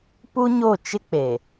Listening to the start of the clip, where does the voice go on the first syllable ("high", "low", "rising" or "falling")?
high